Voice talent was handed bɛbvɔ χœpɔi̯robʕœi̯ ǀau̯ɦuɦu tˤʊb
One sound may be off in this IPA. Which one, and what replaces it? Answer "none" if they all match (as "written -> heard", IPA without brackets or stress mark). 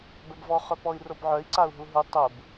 none